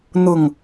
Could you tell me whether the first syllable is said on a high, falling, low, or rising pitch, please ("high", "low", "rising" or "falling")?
falling